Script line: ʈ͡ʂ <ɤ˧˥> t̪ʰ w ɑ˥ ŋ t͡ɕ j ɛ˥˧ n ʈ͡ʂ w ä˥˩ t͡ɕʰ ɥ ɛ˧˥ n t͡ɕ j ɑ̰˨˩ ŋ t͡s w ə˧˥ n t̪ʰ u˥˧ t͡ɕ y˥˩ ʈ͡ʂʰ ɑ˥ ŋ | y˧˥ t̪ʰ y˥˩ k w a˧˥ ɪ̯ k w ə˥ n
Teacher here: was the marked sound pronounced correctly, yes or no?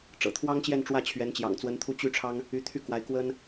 no